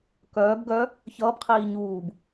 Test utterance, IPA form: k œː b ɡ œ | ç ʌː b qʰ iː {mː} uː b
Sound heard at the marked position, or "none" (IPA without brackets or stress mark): ɲ